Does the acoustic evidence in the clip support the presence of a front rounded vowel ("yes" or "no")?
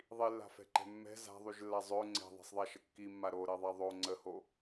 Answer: yes